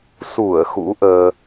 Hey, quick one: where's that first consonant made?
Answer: tongue tip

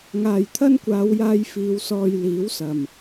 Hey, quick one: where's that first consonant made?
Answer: velum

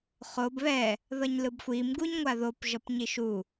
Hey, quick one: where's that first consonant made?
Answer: uvula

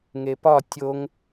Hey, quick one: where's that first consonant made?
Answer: velum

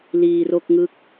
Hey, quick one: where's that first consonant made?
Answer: tongue tip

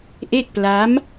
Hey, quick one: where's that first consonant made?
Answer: throat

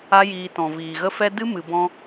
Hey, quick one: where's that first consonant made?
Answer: palate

